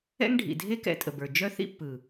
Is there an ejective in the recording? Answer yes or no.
yes